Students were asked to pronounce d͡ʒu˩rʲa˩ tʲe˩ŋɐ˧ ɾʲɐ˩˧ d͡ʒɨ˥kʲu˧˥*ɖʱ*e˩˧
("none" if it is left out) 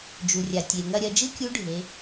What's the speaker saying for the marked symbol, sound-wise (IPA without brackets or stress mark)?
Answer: ɖʱ